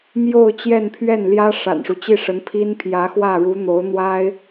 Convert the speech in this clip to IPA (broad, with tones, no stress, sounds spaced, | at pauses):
m j o˥˧ ʊ̯ t͡ɕ j ɛ˥˧ n pʰ ɥ ɛ˥˩ n l j ä˥ ʂ a̰˨˩ n ʂ u˦ t͡ɕ i˥˩ ʂ ə˧˥ n pʰ i˥ n pʰ j ä˧˥ x w ä˥˩ ɻ u˧˥ n̪ o˧˥ ʊ̯ n̪ w a˥ ɪ̯